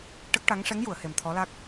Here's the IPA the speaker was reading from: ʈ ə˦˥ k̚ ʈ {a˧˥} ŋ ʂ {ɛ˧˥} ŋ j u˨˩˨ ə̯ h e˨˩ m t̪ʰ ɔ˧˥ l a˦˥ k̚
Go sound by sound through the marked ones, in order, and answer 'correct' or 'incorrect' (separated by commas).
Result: correct, correct